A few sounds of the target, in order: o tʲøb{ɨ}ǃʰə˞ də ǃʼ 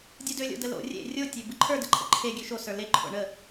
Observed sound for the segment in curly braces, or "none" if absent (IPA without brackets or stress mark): ɨ